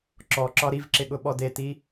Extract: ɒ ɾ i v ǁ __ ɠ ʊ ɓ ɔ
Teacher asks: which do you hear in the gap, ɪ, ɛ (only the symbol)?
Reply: ɪ